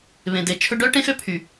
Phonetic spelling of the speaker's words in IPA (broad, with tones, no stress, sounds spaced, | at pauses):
β ẽ˨ d e˨ t͡ʃʰ ɵ˦ ɖ œ˦ ʈ ẽ˦ x ø˧ pʰ y˨